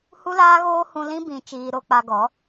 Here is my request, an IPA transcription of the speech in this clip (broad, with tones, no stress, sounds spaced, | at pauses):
h u˦ l aː˦ ɣ oː˦ h ũ˧ l ĩ˦ b ĩ˦ t͡ʃ iː˧ ɾ o˧ k͡p a˧ ɡ ɔ˨˦